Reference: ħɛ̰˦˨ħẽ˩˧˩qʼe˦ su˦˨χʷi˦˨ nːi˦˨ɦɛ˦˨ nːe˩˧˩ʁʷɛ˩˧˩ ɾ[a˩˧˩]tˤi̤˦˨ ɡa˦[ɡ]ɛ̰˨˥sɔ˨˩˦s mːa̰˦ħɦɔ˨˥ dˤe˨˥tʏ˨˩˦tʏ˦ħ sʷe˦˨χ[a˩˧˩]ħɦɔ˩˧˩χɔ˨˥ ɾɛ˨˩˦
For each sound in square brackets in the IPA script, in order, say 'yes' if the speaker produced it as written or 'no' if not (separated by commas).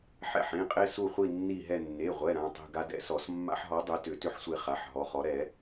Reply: no, no, yes